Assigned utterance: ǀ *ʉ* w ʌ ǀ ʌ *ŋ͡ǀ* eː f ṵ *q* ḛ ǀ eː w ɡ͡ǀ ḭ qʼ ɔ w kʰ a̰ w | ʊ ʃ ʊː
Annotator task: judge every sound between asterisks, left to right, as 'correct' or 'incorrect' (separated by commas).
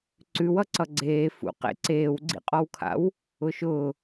correct, incorrect, correct